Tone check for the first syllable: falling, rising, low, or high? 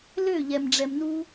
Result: falling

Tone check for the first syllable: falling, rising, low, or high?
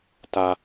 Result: low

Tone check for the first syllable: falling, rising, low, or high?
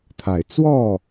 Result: low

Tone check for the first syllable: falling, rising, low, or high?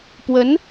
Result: rising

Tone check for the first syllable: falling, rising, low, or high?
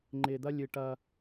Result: low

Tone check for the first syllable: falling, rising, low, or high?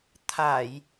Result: low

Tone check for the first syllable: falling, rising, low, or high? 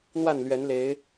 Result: falling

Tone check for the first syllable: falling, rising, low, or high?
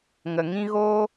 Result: low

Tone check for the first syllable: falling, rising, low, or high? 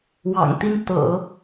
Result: low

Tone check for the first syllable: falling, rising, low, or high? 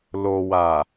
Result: low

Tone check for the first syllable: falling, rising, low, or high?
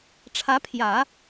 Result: rising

